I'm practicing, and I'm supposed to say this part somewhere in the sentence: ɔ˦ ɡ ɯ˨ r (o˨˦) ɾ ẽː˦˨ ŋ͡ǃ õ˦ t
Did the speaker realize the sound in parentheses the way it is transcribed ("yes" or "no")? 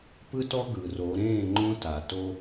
yes